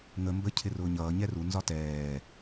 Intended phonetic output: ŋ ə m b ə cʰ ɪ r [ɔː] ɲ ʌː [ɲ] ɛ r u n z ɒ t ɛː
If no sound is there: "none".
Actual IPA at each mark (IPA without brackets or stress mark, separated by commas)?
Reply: ʊː, ɲ